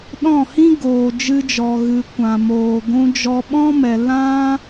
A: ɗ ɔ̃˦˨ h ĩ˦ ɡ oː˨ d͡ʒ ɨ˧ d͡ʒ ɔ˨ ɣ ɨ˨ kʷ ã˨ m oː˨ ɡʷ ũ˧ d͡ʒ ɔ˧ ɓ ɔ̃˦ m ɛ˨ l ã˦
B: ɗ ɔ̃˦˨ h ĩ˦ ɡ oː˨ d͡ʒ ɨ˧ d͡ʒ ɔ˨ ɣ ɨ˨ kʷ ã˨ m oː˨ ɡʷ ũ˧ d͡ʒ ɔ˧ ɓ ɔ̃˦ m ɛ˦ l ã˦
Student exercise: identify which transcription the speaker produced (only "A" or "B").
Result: A